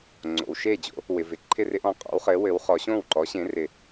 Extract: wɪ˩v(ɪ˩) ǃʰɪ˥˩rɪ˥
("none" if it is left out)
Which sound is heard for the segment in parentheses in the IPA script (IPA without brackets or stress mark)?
ɪ˩